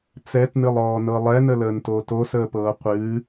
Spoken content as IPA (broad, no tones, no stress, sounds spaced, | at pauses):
t͡s ɛ t n ɨ lˠ ɔː n ɤ lˠ ɛ n ə l əː n t oː t o s əː p ɤː qʷ ɨː